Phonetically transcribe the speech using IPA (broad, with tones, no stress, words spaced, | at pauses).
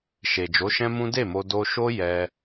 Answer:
ʃe˨d͡ʒo˨˦ʃɛ̃˦mũ˦ de˦˨mo˧ do˧ʃo˦ jɛ˧